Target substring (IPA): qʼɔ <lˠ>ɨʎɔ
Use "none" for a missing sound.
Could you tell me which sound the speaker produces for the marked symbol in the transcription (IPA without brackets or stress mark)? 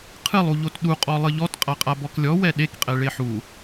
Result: lˠ